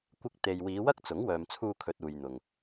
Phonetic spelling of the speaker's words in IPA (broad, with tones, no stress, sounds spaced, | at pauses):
kʷ ɪ˧ k̚ t̪ e˨ j w iː˨˧ w ɐ˥ k̚ t͡s ʊ˨˥ ŋ w œː˨ m t͡sʰ uː˧ kʰ ɵ˨ t̚ uː˨ j n̪ ʊ˨ ŋ